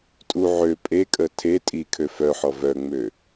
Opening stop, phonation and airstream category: ejective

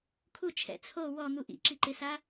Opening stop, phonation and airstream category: aspirated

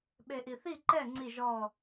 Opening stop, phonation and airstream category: implosive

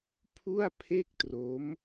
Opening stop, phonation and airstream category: aspirated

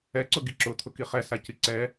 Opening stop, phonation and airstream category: click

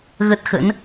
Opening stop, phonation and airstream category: plain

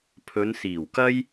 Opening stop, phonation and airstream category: aspirated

